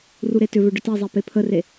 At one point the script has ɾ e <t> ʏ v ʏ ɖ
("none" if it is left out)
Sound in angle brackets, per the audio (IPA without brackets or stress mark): t